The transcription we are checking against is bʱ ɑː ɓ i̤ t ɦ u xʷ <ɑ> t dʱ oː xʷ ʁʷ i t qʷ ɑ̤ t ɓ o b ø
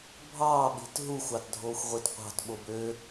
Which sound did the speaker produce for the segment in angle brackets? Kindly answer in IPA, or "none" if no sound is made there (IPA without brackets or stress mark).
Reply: ɑ